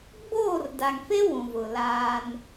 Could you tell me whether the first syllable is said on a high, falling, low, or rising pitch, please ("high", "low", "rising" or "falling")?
falling